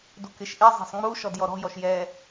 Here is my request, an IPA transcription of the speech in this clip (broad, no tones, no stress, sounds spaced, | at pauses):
d u k ɪ ʃ ʔ i zˤ e̤ sˤ ŋ͡m u ʃ ɔ d j ɔ ɾ ɔ̤ j ɔ ʃ j ɛ